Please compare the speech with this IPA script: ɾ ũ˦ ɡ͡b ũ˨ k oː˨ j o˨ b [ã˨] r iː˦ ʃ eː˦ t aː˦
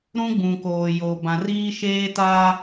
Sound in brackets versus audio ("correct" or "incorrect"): correct